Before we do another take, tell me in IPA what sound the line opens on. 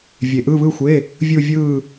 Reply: vʲ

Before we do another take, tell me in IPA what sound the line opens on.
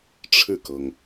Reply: ʈ͡ʂʰ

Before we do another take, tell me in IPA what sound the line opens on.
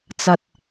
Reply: t͡s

